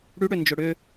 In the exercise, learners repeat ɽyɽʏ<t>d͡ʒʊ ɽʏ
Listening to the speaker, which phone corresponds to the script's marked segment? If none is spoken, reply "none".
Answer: n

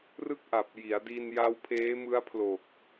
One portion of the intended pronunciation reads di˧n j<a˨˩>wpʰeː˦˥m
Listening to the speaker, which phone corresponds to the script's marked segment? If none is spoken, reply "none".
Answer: a˦˥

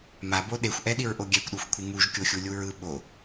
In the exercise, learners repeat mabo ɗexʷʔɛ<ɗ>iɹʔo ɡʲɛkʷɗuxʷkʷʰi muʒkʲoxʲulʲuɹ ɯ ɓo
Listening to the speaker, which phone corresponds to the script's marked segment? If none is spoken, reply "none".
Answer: ɗ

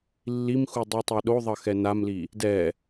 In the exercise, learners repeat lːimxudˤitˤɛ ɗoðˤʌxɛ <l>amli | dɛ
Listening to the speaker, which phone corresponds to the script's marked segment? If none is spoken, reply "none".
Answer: n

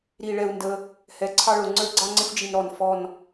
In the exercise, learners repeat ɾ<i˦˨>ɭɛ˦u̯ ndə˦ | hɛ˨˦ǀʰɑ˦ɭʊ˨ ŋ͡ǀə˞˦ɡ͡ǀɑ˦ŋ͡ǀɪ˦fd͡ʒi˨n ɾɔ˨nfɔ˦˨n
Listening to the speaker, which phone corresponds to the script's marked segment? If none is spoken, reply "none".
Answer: i˦˨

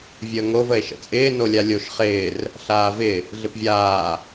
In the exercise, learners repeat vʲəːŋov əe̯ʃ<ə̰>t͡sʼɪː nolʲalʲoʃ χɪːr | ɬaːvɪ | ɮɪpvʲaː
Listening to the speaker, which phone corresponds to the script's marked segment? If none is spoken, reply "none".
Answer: ə̰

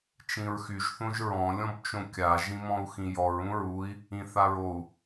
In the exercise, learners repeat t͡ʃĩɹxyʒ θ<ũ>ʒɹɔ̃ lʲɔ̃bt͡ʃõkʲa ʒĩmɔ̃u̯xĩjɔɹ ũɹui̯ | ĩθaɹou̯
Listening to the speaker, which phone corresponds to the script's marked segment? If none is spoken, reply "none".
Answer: õ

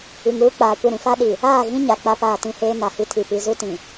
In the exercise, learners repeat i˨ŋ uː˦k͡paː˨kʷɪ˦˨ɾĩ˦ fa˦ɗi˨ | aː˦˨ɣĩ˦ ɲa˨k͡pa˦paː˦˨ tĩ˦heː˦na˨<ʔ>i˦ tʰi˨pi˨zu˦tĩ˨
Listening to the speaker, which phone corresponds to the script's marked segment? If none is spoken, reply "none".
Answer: h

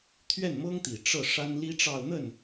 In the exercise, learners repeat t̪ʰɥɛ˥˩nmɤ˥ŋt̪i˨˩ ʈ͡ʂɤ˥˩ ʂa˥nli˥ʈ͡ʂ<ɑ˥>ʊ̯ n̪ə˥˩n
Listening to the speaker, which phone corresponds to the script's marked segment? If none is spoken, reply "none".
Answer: ɑ˥˧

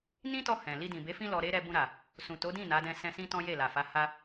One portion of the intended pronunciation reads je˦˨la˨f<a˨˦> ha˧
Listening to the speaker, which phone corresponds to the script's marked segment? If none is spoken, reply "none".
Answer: a˨˦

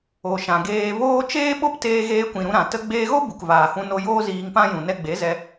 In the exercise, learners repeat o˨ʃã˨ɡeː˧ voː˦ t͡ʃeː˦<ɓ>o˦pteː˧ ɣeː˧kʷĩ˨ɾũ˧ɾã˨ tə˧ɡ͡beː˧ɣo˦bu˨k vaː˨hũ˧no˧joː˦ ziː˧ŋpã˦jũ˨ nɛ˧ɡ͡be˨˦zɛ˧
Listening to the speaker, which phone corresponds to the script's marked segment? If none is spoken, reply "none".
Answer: ɓ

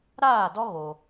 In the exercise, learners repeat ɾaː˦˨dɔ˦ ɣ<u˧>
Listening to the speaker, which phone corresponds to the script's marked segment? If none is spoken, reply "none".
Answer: o˧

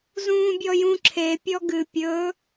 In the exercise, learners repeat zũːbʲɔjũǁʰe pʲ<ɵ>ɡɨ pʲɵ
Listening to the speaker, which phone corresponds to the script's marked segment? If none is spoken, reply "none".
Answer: ɔ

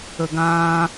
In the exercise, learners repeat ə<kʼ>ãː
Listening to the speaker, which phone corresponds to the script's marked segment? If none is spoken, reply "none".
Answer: ɡ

